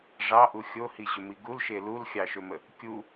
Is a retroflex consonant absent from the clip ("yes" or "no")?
no